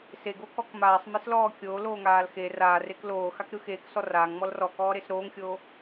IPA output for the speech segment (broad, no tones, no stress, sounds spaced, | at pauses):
s e ɡ o k ɔ k m aː sˤ m e s l ɔː kʲ o l oː ŋ aː l x e r aː r e k l oː x a k ɾ ɯ x eː k s ɔ r aː ŋ ŋ͡m ɔ l r ɔ k ɔː ɾ e s ɾ oː ŋ xʲ oː